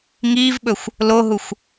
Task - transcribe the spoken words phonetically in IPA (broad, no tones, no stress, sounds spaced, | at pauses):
ŋ iː v ɓ ɵ xʷ | l o ɦ u xʷ